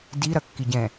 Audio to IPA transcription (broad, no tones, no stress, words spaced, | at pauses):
di ɾɐkːiɟɛ̃